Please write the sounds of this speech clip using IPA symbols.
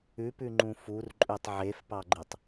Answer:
ʉ p ʉ ŋ͡ǃ ũ f u r ǃʼ ʉ tˤ ʕ e f p ɑ ɡ͡ǃ ɨ tˤ

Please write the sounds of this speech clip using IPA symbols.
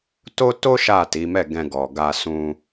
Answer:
t o˦ t o˦ ʃ a˦˨ t i˨˦ m ɛ˦˨ ɡ ɛ̃˧ ɡ ɔ˨ ɡ a˧ s ũ˧

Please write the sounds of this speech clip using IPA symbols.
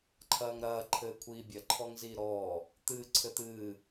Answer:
ǃʰ ɐː ŋ ɾ ɐː ǃʰ ɘː kʷʰ iː bʲ ɐ ǃʰ ɔ ŋ z iː ɾ ɔː | t̪ ɨː ǀʰ ɘ t̪ ɨː

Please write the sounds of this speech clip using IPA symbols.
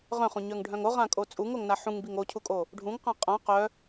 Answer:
ʁ œ̃ χ ũ ɲ œ ŋ ɖʱ œ̃ ŋ o ʁ ã kʼ o t͡sʼ u ŋ o ŋ n a ħ ũ ŋ b i ŋ o cʰ u kʼ o | ɖʱ ũ ŋ q ã qʼ ã q œ

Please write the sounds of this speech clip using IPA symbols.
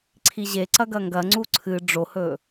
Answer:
ǀʰ i ʑ e ǀ ɐ ɡ ɐ ŋ ɡ ɐ ŋ͡ǀ u ǀʰ ɨ ɖ͡ʐ o h ɵ

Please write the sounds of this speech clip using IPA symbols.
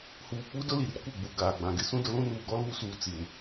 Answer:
h uː˨ k͡p u˦ d ʊ˦ l i˨ r kʷ ɪ˦˨ ɡ͡b u˨ ɡ aː˨ ɡ͡b ã˨ ɡ ɪ˦ s ũ˦ d ʊ˦ l ũ˦ n uː˨ ɡ ɔ˦ l uː˦ s uː˨ t͡s i˨ n

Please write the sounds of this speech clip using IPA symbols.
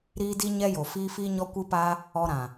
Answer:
ɾ iː˦ d i˦ ɲ ɛ˦ j o˨ f iː˦ f iː˦ ɲ ɔ˦ kʷ ɨ˦ p aː˦ | ɔ˧ ɾ ã˨

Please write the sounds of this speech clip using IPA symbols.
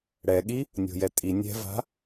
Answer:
ɽ ɛ ɠ i | nʲ o̤ j ɛ tʼ i nʲ ɛ̤ v a̤

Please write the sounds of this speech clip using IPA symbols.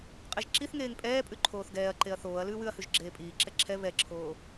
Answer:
qʼ e ʒ ǁ i θ ŋ eː ŋ pʼ ɛː pʼ ʉ ǃʰ oː θ ɡ ɛː ɐ̯ ǃ e ɐ̯ θ oː ɐ̯ l ʉː w ʉ ɐ̯ h ʉ ʒ ɡ͡ǁ eː pʼ iː ǁ ɛ ǁʰ ɛ β ɛ ǁʰ oː

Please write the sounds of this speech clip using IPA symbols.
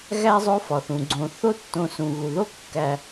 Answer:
ɣ æ˦ zˤ o˥ f ɒ˩ θ ũ˩ ɡ͡ǀ õ˨ θ o˥ tː õ˨ s ũ˩ ɣ u˩ ð o˥ kː æ˨

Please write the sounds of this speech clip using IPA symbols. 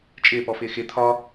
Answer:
t͡ʃʼ ɪː p ɔ f ɪː x ɪ t̪ʰ ɒ

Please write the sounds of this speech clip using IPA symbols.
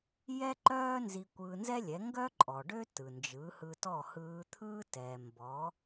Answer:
j ɛ˥ ǃ œː˥ n z i˧ kʷ ɯː˧ n z ɛ˥ lʲ ɛ˩˥ ŋ ɡ œ˥ ǃʼ ɔ˩ ɖ ø˥ t ɯ˩ n d͡ʒ ɯ˩˥ h ɯ˧ t ɔ˥˩ h ɯː˧ t̪ʰ ɯː˥ t ɛ˩ m b ɔ˩˥

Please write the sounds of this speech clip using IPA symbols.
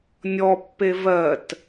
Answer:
nʲ ɔ pː e v ɜ t

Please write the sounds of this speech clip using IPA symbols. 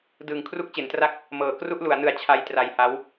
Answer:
d ɯː˨˩ ŋ kʰ r u˦˥ k̚ t͡ɕ e˩˦ n t r a˥˩ k̚ | m ɤː˩˦ k r u˥˩ ʔ l u˩˦ a̯ n ɯ˨˩ a̯ t͡ɕʰ a˧ j t r a˧ j h a˦˥ w

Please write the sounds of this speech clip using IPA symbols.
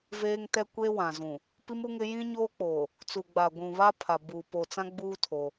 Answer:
v eː˦ ŋ t ɛ˦ kʷ eː˦ w ã˨ z ũ˨ | p i˦ m u˦ ŋ ɪ˦ j ĩ˦ ɲ oː˦ k͡p oː˨ | t͡s u˨ ɡ͡b a˨ ɡʷ ũ˨ β aː˦ pʰ a˨ b uː˨ p oː˨ t͡s ã˦ ɡ͡b uː˦ tʰ oː˦

